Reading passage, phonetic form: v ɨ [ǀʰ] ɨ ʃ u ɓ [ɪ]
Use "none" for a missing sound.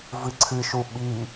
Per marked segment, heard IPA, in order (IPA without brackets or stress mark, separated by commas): ǀʰ, i